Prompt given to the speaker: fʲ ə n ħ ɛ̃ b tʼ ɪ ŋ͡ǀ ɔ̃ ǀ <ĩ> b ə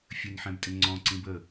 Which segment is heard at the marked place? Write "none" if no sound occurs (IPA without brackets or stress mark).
ĩ